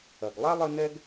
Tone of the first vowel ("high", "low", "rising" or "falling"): low